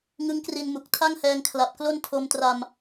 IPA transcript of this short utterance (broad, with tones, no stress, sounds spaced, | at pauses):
ŋ ɯ˦˥ ŋ k r i˧ n m u˨˩ k̚ tʰ a˥˩ ŋ h ɛː˧ ŋ kʰ l a˨˩ p̚ k l o˥˩ n tʰ o˧ m t r a˧ m